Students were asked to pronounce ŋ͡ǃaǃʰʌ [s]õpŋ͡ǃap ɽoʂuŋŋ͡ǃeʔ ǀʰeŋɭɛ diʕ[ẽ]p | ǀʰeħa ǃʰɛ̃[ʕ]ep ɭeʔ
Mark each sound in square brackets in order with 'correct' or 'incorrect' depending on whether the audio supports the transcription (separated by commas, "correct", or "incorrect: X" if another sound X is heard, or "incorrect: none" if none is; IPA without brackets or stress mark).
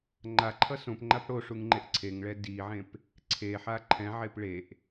correct, correct, correct